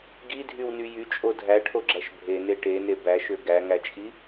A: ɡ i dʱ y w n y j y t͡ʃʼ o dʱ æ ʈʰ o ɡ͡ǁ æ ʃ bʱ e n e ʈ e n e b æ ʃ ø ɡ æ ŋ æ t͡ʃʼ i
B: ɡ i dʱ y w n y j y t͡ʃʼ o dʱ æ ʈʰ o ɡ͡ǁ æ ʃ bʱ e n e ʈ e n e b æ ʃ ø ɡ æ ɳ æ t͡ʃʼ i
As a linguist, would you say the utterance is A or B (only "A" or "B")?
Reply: A